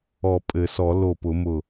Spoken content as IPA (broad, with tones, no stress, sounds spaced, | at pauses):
ɔ˨˩˦ pʼ ɘ˨˩˦ s ɔ˨˩˦ l o˧˩ p ʊ˨˩˦ m ʊ˧˩